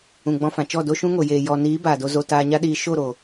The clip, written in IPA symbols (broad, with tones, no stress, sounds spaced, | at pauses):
ũ˨ ɡ͡b ɔ̃˧ f ã˨ t͡ʃ ɔ˦˨ d o˦ ʃ ũ˦ ŋ o˨ j eː˨ j ɔ˧ n iː˨˦ b aː˨ d o˧ z o˨ t aː˧ ɲ a˦ ɗ iː˧ ʃ o˦˨ ɾ o˨